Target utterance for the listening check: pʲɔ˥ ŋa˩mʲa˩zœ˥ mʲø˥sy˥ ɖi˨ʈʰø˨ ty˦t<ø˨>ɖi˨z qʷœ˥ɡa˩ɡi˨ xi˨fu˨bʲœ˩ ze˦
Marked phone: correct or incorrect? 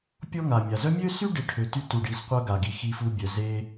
incorrect